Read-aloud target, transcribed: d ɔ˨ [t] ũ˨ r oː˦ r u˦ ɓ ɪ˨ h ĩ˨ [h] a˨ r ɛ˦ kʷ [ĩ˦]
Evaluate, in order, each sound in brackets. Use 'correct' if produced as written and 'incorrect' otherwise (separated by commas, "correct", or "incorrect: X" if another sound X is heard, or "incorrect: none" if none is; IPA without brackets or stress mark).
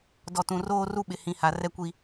correct, correct, incorrect: i˦